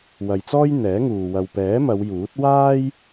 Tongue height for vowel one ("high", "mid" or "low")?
low